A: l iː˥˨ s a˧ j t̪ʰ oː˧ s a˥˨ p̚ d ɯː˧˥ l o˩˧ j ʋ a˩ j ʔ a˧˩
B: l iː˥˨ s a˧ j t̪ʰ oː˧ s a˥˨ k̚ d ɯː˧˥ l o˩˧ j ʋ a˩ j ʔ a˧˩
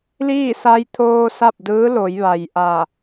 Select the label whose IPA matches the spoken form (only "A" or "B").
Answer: A